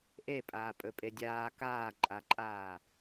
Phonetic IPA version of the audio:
ʔ e pʼ aː pʼ ɵ pʼ e dʲ aː k aː ǃʼ a ǃʼ aː

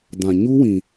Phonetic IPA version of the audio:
d ã˨ ɲ u˦ w ĩ˨

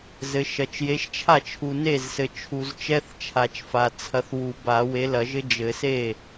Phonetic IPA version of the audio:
z ɘ˨ ʃ ɐ˨ t͡ʃ j e˨˥ ʃ t͡ʃʰ a˥˩ t͡ʃʰ u˨ n e˥˩ z s ɘ˨ t͡ʃʰ u˨ z t͡ʃ ɛ˧˥˧ θ t͡ʃʰ a˨ t͡ʃ f a˨ t͡sʰ ɐ˨˥ θ w u˨˩˦ b a˨˩˦ w e˨˥ l ɐ˨˩˦ ʒ ɘ˦˥ d͡ʒ ɘ˨˩˦ s e˥˩

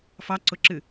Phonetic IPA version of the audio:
f ɑ ǀ ʊ ǁ ɨ

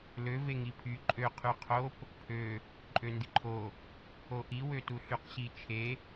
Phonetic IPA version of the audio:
l ø v e ŋ i pʰ y ǃʼ ø qʰ y qʰ o p | pʰ ø | ǃʼ ø n d i ǃʰ o | o ʔ i w ø t u ɬ y q ɕ i t͡ʃʰ e

